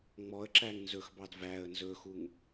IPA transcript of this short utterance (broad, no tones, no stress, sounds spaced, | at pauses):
ŋ͡m ɔ ə̯ ǁ æ ŋ n z ɵ x b ɑ d v æ ə̯ n z ɵ x u ŋ